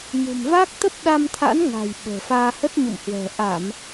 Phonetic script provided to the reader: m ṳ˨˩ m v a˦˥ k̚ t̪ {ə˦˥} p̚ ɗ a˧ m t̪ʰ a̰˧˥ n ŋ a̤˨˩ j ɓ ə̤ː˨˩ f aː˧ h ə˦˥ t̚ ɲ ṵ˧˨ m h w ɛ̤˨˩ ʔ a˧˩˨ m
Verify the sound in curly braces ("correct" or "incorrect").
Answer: correct